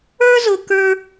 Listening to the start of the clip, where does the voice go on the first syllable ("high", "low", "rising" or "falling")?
high